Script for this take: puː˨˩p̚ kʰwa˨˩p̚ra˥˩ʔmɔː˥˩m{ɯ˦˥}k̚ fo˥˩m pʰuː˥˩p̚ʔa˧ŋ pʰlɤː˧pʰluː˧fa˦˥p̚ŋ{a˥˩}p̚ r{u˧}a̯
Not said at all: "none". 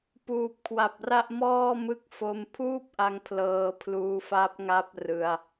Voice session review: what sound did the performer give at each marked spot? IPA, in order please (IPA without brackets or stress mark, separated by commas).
ɯ˦˥, a˦˥, ɯ˧